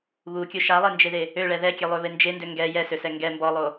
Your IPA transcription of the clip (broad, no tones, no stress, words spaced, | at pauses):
βukʲo ʃalˠend͡ʒeðe | øɭɛ ðɛkʲɛlˠøβe nd͡ʒendø ŋɡɛ jɛsøsɛ ŋɡɛ mbɔlˠo